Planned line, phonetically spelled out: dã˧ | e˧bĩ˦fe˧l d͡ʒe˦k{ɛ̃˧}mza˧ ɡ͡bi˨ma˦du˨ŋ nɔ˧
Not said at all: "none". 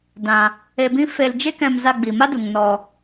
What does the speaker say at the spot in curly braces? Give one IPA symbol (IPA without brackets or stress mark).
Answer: ɛ̃˧